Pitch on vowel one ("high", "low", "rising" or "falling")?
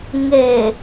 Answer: low